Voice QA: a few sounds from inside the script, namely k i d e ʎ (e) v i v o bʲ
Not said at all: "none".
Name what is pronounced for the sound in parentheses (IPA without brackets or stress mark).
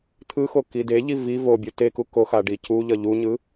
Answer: i